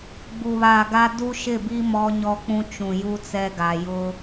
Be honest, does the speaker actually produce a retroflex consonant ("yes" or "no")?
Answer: no